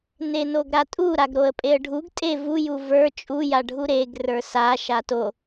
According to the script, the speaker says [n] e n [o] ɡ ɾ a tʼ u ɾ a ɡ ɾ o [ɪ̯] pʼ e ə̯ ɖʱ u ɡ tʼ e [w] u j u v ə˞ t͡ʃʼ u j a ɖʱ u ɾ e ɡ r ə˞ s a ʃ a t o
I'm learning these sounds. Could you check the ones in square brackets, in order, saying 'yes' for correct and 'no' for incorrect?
yes, yes, no, no

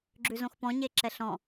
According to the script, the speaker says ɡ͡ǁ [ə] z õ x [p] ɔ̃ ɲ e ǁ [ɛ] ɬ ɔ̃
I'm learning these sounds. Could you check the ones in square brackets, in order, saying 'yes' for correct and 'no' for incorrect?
no, yes, yes

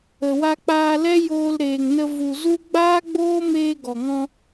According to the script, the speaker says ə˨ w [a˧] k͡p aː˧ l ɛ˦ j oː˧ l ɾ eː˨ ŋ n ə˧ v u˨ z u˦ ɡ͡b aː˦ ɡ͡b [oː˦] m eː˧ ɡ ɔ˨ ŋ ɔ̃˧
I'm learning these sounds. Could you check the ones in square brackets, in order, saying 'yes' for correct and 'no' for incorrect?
yes, yes

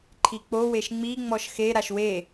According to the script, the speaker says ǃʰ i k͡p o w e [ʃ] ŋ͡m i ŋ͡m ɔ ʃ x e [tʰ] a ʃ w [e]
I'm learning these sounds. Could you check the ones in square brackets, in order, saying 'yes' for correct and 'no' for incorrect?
yes, no, yes

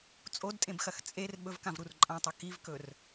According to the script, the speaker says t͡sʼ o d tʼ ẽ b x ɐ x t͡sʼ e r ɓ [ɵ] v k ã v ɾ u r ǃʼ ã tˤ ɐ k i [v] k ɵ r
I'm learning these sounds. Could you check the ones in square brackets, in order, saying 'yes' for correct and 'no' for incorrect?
yes, yes

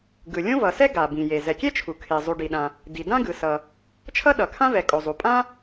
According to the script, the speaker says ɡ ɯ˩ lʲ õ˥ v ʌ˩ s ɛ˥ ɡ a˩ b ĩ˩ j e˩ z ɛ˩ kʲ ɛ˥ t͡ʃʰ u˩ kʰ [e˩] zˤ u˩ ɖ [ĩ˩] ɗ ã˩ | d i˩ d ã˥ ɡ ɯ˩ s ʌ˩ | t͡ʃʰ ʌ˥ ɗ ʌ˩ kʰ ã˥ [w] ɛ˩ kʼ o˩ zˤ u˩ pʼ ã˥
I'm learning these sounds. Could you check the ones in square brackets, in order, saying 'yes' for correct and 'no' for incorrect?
yes, no, no

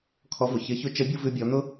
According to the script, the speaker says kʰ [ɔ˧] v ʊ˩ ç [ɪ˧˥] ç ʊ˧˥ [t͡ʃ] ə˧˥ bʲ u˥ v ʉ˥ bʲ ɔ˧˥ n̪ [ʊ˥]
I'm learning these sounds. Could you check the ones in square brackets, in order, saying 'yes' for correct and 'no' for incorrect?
no, yes, yes, yes

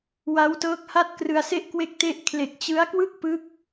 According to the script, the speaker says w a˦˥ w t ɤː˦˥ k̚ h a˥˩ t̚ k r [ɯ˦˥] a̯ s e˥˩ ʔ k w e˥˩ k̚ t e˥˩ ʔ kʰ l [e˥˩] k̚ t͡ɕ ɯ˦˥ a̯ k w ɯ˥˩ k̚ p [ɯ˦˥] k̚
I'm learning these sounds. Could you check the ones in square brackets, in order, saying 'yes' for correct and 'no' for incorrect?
no, no, yes

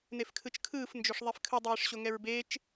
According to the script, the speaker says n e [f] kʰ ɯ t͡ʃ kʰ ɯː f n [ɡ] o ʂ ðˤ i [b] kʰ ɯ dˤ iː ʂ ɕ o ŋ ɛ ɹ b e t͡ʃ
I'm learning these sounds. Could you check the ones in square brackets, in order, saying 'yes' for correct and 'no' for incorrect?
yes, no, no

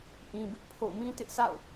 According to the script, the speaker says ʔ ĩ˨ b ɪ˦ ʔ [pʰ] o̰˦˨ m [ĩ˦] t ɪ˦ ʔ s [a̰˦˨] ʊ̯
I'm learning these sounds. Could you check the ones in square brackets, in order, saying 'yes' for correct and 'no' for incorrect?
yes, yes, yes

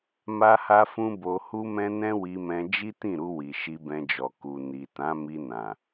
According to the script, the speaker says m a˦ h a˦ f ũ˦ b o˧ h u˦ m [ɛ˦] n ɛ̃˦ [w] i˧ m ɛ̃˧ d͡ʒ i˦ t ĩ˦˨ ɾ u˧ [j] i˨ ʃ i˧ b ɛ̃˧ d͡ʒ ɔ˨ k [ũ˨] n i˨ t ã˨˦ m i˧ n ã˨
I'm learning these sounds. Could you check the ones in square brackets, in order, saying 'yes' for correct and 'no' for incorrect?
no, yes, no, no

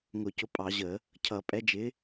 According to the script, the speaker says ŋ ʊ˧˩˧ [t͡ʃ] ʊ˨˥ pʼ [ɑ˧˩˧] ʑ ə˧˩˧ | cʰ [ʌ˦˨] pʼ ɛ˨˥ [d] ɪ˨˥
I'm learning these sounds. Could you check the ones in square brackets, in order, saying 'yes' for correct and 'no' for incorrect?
no, yes, no, no

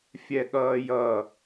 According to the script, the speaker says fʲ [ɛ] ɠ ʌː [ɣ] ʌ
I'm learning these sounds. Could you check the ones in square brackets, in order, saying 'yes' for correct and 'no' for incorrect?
yes, no

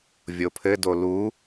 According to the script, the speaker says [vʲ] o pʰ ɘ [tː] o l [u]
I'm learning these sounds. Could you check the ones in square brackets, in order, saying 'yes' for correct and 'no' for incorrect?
yes, no, yes

